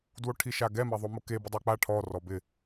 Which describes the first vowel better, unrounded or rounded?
rounded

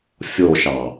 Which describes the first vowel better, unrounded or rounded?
rounded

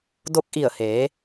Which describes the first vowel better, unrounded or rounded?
rounded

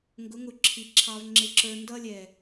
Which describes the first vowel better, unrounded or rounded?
rounded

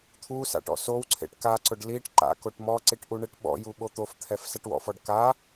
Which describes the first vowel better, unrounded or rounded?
rounded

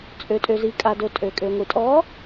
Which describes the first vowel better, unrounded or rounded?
rounded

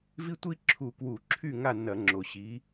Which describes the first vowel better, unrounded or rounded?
unrounded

